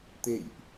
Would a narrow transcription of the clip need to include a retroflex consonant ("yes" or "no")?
no